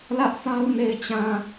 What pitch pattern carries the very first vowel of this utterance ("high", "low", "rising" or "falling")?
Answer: high